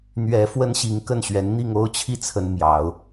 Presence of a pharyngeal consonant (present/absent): absent